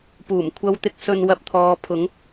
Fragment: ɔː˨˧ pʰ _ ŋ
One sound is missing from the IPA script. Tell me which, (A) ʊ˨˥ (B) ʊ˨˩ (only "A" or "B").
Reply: A